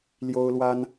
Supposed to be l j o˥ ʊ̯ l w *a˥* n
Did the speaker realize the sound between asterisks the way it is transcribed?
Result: yes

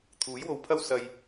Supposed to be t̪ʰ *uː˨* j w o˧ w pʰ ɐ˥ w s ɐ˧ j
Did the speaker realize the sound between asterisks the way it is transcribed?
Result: no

